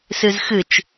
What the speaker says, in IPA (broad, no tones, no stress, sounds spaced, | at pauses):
s ɨ z x ɨ t͡ʃ